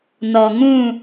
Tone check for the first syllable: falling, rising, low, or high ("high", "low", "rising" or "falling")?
low